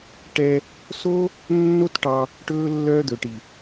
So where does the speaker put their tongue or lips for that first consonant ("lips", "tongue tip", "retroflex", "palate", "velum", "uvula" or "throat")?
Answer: retroflex